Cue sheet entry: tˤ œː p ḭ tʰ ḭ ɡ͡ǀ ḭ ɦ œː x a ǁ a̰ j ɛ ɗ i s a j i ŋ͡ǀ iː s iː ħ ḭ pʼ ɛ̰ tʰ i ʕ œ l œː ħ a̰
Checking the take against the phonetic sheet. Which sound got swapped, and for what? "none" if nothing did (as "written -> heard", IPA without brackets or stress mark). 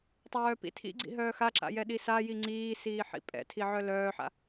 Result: none